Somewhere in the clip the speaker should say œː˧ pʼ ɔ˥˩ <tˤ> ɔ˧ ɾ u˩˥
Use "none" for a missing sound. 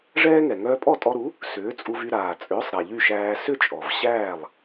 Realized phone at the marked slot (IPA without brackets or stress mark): tʼ